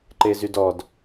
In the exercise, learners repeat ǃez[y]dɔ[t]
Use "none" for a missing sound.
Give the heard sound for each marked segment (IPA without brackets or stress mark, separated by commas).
y, d